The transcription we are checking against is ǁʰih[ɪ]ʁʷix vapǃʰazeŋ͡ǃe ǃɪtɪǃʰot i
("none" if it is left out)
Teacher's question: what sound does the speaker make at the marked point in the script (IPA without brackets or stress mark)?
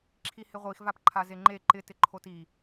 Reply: ɪ